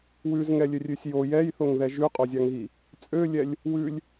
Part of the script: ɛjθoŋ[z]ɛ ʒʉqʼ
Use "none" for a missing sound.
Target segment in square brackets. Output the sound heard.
ð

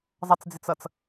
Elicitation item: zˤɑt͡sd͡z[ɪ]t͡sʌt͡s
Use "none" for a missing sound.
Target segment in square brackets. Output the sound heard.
ɪ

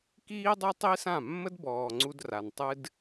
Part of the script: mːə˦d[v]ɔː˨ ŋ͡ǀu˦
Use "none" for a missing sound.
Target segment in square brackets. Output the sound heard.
b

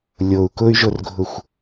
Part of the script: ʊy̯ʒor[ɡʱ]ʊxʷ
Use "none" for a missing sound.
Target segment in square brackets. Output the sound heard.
ɡʱ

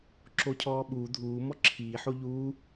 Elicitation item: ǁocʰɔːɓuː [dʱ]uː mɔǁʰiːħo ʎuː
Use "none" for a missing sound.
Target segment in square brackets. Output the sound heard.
dʱ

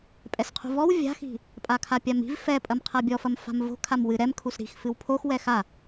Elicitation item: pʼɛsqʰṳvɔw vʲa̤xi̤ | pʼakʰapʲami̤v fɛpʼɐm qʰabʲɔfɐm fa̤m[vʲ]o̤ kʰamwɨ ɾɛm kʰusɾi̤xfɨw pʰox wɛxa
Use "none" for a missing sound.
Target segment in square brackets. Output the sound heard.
v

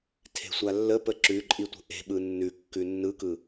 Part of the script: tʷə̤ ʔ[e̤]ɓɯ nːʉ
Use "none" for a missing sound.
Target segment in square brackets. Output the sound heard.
e̤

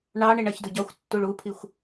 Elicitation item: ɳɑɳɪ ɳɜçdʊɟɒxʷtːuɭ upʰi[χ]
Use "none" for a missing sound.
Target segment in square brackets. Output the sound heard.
xʷ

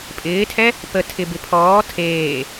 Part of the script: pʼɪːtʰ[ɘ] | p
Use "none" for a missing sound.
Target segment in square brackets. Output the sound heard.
ɛ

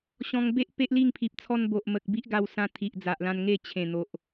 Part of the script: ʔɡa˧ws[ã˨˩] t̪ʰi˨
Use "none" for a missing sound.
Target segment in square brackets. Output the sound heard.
ã˧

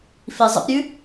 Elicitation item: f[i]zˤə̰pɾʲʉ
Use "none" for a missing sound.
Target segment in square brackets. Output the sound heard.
i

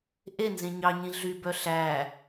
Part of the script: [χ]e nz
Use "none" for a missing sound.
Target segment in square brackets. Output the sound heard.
ʔ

